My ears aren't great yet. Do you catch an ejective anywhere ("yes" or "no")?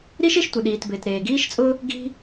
yes